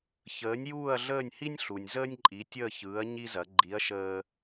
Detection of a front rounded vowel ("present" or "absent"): absent